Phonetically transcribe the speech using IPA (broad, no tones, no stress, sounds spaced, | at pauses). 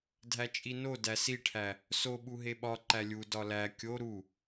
dʱ æ t͡ʃʼ i n o d æ s i ʈʰ æ | s o ɓ u ɦ e ɓ ɒ ǃ æ lʲ u d ɒ l æ kʲ o ɾ u